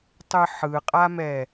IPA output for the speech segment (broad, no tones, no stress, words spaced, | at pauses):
tˤɯħɯqʼamɛ